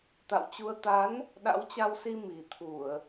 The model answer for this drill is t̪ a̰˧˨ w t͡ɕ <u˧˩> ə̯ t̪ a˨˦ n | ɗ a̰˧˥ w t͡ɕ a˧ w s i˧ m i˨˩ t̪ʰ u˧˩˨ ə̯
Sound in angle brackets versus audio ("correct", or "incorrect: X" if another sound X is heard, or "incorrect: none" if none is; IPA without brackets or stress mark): incorrect: u˧